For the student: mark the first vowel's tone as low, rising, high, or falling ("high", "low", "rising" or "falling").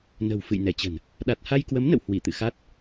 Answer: low